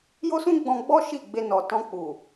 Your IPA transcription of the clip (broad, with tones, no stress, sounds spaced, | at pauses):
j o˦ s ũ˦ ɡ͡b ɔ̃˧ ɡ͡b ɔ˦ ʃ i˦˨ ɡ͡b e˧ n ɔ˨ t ɔ̃˧ k͡p u˨